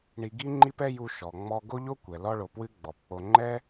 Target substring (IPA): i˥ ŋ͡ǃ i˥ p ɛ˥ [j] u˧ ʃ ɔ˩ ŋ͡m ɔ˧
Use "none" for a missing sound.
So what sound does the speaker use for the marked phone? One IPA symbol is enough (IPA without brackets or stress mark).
j